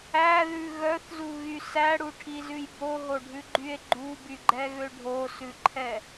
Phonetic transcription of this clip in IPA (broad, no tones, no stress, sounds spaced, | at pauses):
æ ð ʉ ɣ œ θ z u ɣ y s æ ɽ u ʈʰ i z ʉ j b o ɦ o ɖʱ ʉ ɡ͡ǃ y e̯ ɡ͡ǃ u b y ɡ͡ǃ ɛ ɣ ø ɖʱ o s ʉ ǃʰ ɛ